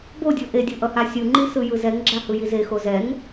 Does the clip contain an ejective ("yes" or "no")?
no